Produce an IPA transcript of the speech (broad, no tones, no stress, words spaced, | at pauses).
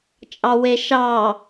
t͡ʃʼɑweʃɑ